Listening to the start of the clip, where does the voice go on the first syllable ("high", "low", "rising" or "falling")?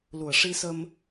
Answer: low